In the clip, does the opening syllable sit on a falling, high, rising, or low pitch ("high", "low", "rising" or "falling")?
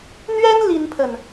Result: high